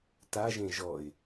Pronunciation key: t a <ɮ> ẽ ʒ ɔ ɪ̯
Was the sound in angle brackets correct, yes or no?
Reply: no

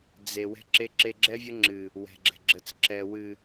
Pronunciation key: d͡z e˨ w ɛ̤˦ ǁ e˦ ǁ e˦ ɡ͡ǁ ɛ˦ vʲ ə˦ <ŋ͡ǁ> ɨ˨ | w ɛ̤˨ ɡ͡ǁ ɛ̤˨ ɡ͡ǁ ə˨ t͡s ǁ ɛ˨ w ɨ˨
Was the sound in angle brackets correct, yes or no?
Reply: yes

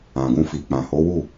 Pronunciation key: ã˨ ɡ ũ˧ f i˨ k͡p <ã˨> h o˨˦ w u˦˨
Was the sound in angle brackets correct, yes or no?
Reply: yes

